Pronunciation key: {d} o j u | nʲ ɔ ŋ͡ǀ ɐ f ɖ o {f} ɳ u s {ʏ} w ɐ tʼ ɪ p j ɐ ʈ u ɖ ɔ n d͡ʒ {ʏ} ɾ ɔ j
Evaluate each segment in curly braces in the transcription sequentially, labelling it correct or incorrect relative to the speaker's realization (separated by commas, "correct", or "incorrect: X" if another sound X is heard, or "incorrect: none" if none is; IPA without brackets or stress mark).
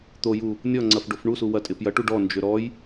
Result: incorrect: t̪, correct, incorrect: u, correct